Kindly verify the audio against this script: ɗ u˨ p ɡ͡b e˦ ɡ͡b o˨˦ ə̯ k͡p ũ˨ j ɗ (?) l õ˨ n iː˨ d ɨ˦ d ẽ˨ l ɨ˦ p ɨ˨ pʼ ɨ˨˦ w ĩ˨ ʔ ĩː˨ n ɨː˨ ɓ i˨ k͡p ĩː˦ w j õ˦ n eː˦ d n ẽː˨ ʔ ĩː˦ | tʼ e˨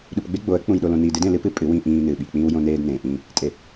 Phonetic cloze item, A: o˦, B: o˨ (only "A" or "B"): B